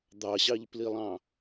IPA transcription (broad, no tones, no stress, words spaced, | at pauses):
d̪ɑɕɑʎplilˠɑ̃